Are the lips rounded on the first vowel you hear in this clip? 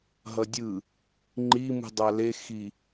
no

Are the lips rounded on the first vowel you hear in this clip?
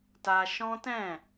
no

